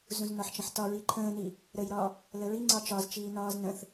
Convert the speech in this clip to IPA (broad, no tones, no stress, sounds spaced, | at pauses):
z ũ z n ɒ ħ t͡ʃ ə̃ ħ t ɒ ɹ i ǃʰ ə̃ː n i | ɾ ə j ɾ ɒ | l ə ɹ i ŋ͡ǀ ɒ t͡ʃ ɒ z t͡ʃ iː n ɒː z n ə̃ θ